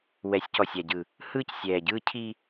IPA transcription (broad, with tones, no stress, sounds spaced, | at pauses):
w ɛ˨˦ sʲ c ɔ˨ sʲ a˨ ɟ ɯː˨ | h ɯː˦ c sʲ ɛː˨ ɟ ɯː˦ cʰ iː˦